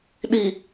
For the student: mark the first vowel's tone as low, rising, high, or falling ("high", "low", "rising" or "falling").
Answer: low